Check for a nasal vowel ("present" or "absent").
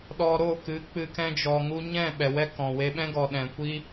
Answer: present